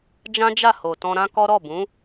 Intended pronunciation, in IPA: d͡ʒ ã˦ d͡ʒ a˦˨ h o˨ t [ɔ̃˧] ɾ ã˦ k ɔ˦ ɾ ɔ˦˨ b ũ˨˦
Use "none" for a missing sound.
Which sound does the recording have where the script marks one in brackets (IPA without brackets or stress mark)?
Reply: ɔ̃˧